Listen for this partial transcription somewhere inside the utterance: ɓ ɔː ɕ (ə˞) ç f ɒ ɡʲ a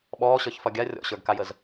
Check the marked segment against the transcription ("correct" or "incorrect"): correct